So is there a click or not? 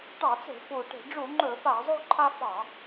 yes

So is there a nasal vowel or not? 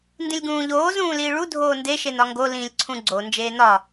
yes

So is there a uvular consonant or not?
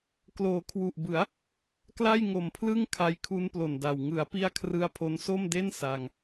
no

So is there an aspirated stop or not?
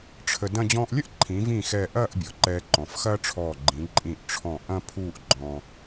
yes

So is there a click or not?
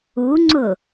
yes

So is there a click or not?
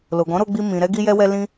no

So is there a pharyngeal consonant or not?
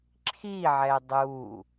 yes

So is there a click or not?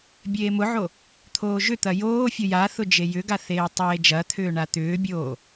no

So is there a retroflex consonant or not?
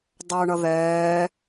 yes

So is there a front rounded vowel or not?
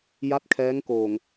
no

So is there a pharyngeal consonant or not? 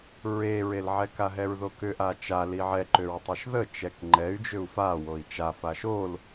yes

